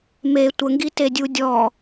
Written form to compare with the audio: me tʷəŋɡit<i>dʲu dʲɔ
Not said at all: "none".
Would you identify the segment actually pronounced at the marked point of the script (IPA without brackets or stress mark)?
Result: e